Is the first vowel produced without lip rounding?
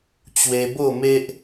yes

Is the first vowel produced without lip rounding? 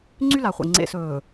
no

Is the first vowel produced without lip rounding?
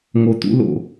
no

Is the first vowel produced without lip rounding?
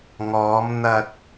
no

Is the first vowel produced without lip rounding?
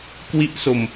yes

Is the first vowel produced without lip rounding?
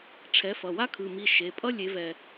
yes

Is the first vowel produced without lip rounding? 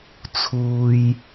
no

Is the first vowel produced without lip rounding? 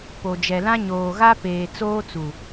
no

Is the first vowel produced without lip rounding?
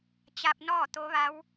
yes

